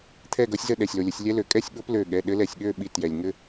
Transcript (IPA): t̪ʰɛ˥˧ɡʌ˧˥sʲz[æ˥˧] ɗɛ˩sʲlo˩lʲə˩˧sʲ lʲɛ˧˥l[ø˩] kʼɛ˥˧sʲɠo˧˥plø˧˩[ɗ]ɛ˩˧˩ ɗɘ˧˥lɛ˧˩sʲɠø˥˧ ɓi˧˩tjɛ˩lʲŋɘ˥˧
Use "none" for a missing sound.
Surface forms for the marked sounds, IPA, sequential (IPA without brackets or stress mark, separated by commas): ə˥˧, ø˩˧, ɠ